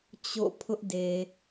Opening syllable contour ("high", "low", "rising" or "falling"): falling